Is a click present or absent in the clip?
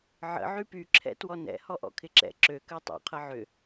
present